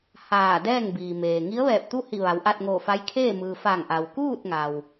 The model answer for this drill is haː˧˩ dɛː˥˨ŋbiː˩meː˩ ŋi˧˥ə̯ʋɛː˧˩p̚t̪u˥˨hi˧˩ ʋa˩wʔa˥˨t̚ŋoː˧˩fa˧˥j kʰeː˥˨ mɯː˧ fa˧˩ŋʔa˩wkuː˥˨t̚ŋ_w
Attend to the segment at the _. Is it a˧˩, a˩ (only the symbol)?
a˩